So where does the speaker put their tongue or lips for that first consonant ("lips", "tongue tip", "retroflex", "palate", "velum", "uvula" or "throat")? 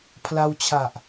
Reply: lips